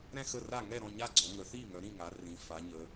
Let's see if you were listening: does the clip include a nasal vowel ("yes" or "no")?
yes